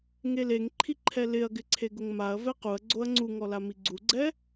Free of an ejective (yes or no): yes